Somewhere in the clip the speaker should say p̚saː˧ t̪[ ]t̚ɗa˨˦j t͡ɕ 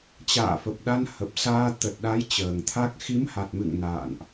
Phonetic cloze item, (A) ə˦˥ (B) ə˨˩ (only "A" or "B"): B